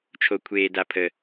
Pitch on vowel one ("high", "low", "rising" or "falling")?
low